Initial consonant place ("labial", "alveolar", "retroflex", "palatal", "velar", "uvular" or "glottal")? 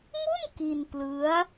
labial